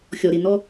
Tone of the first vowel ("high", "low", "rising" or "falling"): low